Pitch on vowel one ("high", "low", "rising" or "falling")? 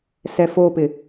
low